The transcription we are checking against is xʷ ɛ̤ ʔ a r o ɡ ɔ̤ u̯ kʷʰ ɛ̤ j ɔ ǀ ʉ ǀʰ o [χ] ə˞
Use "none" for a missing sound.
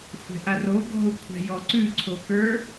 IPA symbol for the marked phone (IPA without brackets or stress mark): k